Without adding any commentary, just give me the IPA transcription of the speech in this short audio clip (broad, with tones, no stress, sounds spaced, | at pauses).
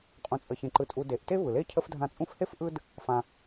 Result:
qʼ ũ˨ t͡sʼ ə˨ ç ẽ˨ ǃ ɯ˨ tʼ u˨ d e˩ ʔ t e˥ v ɯ˩ l e˥ cʰ ə˦ f dʱ ã˦ t͡sʼ ũ˥ f h e˥ f ʔ ɯ˦ d | f ã˨